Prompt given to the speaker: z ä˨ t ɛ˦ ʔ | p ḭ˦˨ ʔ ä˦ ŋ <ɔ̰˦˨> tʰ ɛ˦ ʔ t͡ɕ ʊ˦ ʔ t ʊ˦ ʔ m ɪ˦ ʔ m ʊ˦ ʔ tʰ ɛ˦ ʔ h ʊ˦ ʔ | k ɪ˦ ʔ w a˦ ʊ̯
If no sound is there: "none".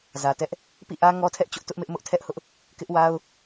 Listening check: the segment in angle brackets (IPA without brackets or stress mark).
ɔ˦